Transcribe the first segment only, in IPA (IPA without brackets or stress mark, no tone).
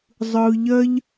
zˤ